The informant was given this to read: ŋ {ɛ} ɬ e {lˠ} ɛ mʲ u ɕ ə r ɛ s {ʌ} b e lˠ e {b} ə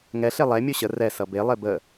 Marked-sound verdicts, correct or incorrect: correct, correct, correct, correct

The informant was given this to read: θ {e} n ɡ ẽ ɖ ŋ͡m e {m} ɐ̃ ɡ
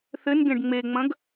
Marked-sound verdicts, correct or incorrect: incorrect: ɘ, incorrect: ŋ͡m

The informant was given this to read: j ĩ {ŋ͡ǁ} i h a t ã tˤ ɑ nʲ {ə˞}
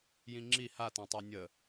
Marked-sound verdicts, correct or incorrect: correct, incorrect: ə

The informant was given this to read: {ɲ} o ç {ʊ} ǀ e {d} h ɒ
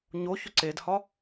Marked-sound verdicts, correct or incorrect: correct, correct, correct

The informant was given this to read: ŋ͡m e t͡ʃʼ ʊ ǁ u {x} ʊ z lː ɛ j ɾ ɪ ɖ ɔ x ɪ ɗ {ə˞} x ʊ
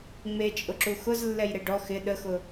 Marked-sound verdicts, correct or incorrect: correct, incorrect: ə

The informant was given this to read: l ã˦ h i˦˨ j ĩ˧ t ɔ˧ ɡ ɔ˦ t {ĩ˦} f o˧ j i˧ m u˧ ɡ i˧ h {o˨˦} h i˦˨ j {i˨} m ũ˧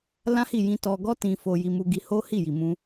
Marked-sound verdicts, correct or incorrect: incorrect: ĩ˧, incorrect: o˦, correct

